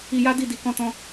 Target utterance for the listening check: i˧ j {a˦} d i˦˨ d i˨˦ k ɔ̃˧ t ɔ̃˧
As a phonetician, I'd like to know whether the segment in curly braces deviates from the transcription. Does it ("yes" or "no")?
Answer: no